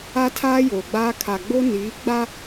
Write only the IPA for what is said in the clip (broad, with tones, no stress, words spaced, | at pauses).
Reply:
a˦tʰaː˦ joː˨ɡ͡baː˦ kʰa˨ɡ͡bo˦ niː˨˦ɡ͡ba˦